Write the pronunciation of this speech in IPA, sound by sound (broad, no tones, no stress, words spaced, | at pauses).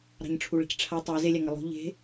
ɾɑ̤ɲʈ͡ʂʰuɭe̤cʈ͡ʂʰa tˤæ zelʲæŋɑ lˠo̤ ʎe̤